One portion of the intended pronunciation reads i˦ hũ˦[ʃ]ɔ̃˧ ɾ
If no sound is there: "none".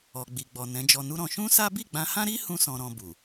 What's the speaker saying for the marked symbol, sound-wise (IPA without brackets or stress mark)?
s